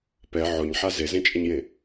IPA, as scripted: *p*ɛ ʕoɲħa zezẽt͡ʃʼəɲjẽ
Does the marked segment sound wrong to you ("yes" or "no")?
no